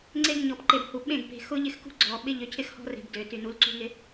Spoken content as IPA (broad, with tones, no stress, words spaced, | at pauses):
ŋ͡ǀe˦ɡɲɔ˨p ǃe˨bhu˨ɓẽ˦˨ɡ pe̤˨ xʊ˦ʎɪ˦xkṳ˦ ɡ͡ǀɔ˨ ɓɪ˦ ʎø˨cʰɪ˦xhɔ̤˦re̤˨b dø˨ ty˨nu˨˦lǀṳ˦ŋɪ˦